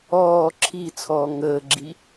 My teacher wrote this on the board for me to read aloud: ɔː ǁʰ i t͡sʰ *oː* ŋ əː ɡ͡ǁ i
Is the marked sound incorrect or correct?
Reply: incorrect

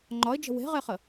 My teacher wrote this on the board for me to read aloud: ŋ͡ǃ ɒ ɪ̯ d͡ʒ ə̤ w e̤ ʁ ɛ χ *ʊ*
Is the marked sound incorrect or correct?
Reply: incorrect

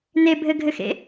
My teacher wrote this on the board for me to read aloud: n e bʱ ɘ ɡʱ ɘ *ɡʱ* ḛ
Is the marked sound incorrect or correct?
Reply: incorrect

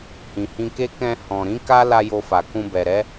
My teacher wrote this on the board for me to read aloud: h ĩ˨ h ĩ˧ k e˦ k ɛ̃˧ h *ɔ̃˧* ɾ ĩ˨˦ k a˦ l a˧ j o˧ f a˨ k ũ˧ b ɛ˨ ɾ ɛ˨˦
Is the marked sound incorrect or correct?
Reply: incorrect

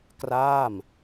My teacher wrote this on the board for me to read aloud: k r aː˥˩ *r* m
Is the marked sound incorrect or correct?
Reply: incorrect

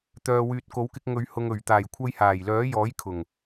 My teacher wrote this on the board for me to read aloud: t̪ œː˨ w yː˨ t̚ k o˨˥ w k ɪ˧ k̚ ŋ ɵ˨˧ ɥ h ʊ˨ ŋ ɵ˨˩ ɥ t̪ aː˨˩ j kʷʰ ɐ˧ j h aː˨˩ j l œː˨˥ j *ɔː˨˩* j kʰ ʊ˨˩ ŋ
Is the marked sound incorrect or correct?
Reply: incorrect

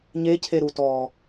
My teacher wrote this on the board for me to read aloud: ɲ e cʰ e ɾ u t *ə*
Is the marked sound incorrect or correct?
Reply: incorrect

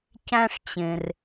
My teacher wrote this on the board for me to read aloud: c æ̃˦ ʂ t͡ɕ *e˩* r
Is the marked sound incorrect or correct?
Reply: incorrect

